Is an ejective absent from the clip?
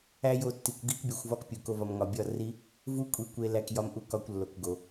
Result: no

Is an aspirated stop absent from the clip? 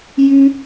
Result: yes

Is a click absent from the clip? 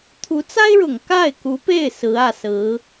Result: yes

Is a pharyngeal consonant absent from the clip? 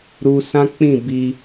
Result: yes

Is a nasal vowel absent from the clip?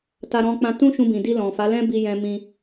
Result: no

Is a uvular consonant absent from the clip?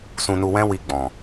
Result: yes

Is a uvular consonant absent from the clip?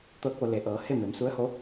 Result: yes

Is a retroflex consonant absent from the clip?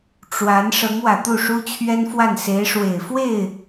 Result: no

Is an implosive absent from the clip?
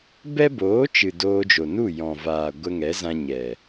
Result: yes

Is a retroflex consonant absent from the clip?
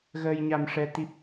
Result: no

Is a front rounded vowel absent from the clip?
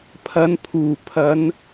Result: yes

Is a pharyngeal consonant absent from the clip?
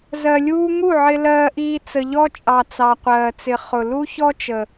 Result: no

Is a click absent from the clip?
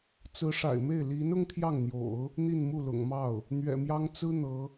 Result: yes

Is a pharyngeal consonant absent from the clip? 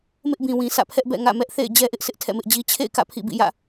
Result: yes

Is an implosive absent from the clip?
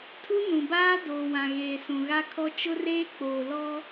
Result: yes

